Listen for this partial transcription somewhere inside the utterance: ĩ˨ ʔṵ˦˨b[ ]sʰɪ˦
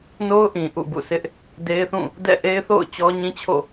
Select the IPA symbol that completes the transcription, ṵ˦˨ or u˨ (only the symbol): ṵ˦˨